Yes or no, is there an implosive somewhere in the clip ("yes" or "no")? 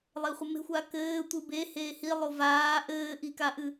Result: no